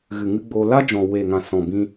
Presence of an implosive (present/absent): absent